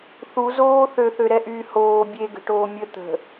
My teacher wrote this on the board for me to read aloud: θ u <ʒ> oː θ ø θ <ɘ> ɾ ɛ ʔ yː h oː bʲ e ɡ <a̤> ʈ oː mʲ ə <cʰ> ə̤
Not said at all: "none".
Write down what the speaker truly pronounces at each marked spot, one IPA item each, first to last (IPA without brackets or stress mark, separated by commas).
z, ø, ə̤, t̪